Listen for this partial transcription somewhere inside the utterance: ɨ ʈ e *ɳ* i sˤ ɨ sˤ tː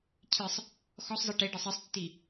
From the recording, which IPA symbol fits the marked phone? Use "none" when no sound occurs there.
ɖ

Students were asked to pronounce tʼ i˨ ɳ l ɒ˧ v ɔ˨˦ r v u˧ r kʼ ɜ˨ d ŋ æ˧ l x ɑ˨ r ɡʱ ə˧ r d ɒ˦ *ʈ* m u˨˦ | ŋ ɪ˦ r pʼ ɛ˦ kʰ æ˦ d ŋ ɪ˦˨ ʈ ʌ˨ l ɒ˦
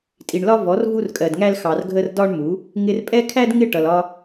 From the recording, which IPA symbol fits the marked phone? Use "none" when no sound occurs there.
ɳ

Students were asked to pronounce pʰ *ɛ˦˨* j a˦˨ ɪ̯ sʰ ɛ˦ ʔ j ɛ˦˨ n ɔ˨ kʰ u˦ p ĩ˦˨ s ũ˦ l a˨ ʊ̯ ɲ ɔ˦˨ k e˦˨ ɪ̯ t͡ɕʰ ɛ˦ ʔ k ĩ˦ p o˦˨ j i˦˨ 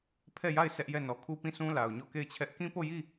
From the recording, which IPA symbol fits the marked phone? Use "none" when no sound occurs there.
ɛ˦˨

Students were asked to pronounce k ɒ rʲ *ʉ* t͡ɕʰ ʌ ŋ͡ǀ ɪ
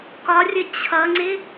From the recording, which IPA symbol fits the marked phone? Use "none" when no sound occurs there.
ə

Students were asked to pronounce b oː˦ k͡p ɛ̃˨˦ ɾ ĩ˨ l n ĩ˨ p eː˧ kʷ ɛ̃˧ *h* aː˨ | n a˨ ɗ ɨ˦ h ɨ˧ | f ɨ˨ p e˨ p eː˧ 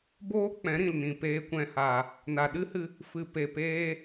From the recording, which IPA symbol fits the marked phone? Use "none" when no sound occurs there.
h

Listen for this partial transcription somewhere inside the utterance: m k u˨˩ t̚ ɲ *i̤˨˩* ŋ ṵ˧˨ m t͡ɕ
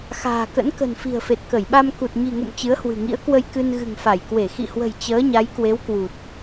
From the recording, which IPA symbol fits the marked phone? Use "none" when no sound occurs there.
i̤˨˩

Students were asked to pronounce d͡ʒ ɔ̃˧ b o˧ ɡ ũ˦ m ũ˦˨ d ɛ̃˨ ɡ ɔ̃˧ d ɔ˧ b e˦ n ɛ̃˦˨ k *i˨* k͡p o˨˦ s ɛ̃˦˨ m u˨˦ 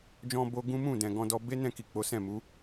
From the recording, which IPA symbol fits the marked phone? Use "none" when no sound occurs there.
i˨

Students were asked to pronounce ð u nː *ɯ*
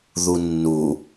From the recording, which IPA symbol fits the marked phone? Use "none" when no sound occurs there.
u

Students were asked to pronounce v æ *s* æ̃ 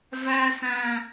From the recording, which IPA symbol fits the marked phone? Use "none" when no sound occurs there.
s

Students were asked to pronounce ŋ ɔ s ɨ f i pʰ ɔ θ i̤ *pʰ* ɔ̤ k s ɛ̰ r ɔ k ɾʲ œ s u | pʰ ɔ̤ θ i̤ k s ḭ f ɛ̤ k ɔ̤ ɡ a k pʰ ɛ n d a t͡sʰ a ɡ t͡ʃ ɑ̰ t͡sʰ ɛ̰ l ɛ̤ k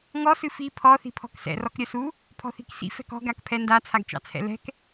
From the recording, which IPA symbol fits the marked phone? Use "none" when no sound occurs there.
pʰ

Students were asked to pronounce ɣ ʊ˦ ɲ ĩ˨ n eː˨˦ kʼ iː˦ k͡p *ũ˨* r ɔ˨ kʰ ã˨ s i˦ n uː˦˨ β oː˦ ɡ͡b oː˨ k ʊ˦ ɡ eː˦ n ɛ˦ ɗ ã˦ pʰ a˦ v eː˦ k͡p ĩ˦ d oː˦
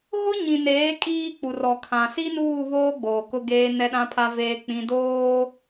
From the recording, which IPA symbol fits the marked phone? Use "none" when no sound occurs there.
u˨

